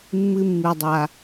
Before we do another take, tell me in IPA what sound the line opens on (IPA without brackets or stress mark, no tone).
mː